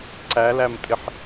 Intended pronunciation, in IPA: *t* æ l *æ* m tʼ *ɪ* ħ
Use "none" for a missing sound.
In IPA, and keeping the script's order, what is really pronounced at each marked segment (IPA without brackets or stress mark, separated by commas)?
ǀ, æ, ɪ